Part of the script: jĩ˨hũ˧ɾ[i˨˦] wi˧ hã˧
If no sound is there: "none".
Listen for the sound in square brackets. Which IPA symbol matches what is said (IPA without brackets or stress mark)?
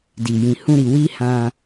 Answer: i˨